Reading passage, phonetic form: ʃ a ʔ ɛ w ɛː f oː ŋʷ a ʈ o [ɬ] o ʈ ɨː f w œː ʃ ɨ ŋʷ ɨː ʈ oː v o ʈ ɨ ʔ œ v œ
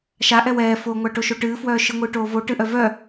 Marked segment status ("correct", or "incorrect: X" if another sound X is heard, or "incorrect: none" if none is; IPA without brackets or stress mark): incorrect: ʃ